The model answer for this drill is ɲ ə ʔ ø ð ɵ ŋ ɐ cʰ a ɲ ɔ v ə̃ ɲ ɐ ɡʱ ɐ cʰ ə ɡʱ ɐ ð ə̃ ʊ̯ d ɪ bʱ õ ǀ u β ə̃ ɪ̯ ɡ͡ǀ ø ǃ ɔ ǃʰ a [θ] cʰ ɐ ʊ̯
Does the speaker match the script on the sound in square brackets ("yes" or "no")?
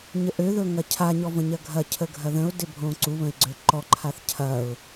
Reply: yes